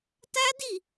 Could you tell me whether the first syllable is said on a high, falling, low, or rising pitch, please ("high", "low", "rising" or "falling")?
high